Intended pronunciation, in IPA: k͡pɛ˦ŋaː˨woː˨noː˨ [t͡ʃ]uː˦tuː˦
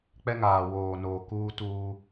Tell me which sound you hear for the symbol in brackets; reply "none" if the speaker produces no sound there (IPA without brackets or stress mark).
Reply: k